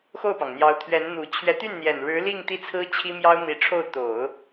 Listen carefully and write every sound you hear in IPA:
x o˥˩ ʊ̯ p ɑ˩ ŋ n̪ j ɑ˧˥ ʊ̯ t̪ʰ ɥ ɛ˧˥ n n̪ u˨˩ t͡ɕʰ ɥ ɛ˧˥ t̪ y˥˩ n n̪ j ɛ˨˩ n ɻ ɻ̩˧˥ l i˥˧ ŋ t̪ i˥˩ t͡sʰ ɹ̩˥ t͡ɕʰ i˥ m j ɑ˥ ʊ̯ n̪ i˧˥ ʈ͡ʂʰ o˥˩ ʊ̯ t̪ o˨˩˦ ʊ̯

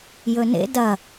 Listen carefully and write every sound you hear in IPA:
j ɵ n ḛ d ɐ

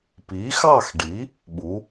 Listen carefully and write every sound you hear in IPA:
p i˨˥ x ɑ˥˧ x ɖ i˨˥ | ɓ u˨˥

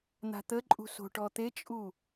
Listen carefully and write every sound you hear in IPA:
n̪ a̤ t̪ ə ǃʼ ṳ s o̤ ʈ ɔ t̪ e t͡ʃʼ u

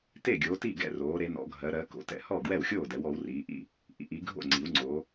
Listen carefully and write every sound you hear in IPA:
t e˥˨ ɡʲ oː˨˦ t i˥˨ ɡ ɛ̰˥˨ r oː˨˦ ɾ e˨˦ n ɔ̰˨˦ ɡʱ ɜ˨˦ ɾ ɜ˨˦ k o̰˨˦ t ɛ̰˨˦ h ɔ˥˨ ɡ w ɛ˥˨ w xʲ oː˥˨ d ɛ˨˦ w ɔ˨˦ w r iː˨˦ ʔ ḭ˥˨ | ʔ ḭ˨˦ ʔ i˨˦ ɡʱ o̰˥˨ ŋ͡ǀ i˨˦ w ŋ͡ǀ o˨˦

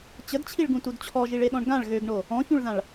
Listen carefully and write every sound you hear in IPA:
t͡ɕ ə d t͡ɕʰ i ɭ ɡ ũ t u d t͡ɕʰ ɔ ʒ i ɭ e ɗ ɔ̃ ɳ ɡ ã ɭ ɣ ø ɡ ɳ o | ɔ̃ ç ũ ɭ ð ã ɭ

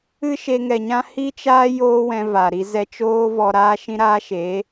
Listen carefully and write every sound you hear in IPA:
ɨ˦ ʃ e˧ ŋ ɛ˨ ɲ ã˦ h i˦ t͡ʃ aː˦ j oː˦ w ɛ̃˧ v a˨ ɾ i˧ z ɛ˧ t͡ʃ oː˦ v ɔ˧ ɾ aː˦ ʃ ĩ˦ ɾ aː˦ ʃ eː˨˦

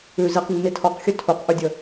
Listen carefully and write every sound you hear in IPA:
ʉ z i q nː i tʰ ɔ q xʲ ɵ tʰ u q ʔ ʉ dʲ ə

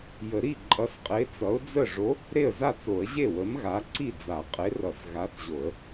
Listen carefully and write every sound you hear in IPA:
j ə˨˩˦ ɾ i˥˩ ǃʼ ʌ˨˥ s qʼ e˨˥ t͡s ʌ˨˥ ʊ̯ d͡z ə˥˩ ʐ o˨˥ | ɾ e˥˩ ə̯ z a˥˩ t͡s o˨˩˦ ə̯ ʑ e˥˩ w ə˨˥ m ɣ a˨˥ ǀ i˥˩ d͡z a˨˩˦ qʼ e˨˥ r ʌ˨˩˦ s ɣ a˨˥ θ ʑ o˨˩˦ ə̯

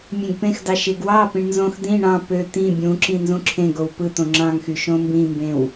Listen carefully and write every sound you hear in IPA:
mʲ ẽ ɡ p ẽ x d ɑ ʃ e ɡ w ɑ p ĩ ɳ n z õ x d̪ ĩ ɳ ɑ̃ p ø t̪ ĩ bʲ ũ ǁ ĩ n z ũ ǁʰ ẽ ɡ o w p ɯ t̪ õ ŋ͡ǁ ɑ̃ ŋ x y ʃ õ m b ĩ m b ẽ w

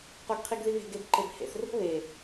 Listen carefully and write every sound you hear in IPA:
q o ɡ qʰ i ɡ ð i β e̤ ɡ e b ǃ e b h ḛ θ r o̤ β e

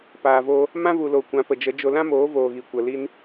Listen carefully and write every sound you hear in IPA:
p aː˨ v o˧ | m ã˦ v u˨ l o˨ kʷ ã˨˦ p ə˨ d͡ʒ ə˨˦ d͡ʒ o˧ l ã˦ m oː˨˦ v oː˨ ɣ i˨ kʷ ə˨ l i˧ n

